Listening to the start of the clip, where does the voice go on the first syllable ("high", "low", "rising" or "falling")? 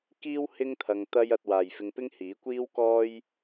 high